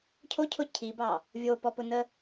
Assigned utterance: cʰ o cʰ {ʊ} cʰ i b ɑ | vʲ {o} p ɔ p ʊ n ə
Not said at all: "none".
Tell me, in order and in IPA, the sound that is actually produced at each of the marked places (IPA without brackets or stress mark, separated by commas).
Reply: ʊ, o